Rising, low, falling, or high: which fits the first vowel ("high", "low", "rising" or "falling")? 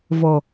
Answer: low